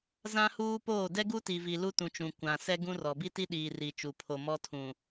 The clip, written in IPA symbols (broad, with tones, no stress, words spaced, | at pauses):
zã˦huː˦poː˦˨ dɛ˦ɡu˦ti˨vi˨ lu˦tũ˨t͡ʃũ˨ kʷã˨ sɛ˦ɡũ˦rɔ˨ bi˦ti˦ɗiː˨ ri˨t͡ʃu˨pʰo˨mɔ˦ tʰũ˨